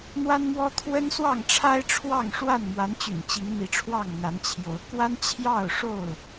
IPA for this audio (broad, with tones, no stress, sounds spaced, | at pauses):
n̪ w a˦ n m w ɔ˦ t̪ʰ w ə˦ n s w ɑ˥˨ ŋ ʈ͡ʂʰ a˦ ɪ̯ ʈ͡ʂʰ w ɑ˥˨ ŋ ʂ w a˥˨ n m w a˨˦ n t͡ɕ y̰˨˩ n t͡ɕ i˨˦ ŋ n̪ i˨˦ ʈ͡ʂʰ w ɑ˥˨ ŋ n̪ a˨˦ n t͡ɕʰ j o˨˦ ʊ̯ k w a˦ n t͡ɕʰ j ɑ˥˨ ʊ̯ ʂ o˥˨ ʊ̯